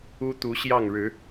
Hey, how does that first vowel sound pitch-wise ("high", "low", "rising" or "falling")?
high